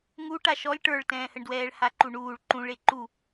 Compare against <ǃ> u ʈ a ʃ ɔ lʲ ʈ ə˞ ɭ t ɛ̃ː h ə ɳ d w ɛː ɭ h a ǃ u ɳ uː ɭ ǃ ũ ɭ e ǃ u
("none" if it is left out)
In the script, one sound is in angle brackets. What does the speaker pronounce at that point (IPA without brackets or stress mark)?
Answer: ŋ